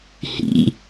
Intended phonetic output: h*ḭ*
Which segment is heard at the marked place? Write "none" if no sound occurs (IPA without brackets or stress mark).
ḭ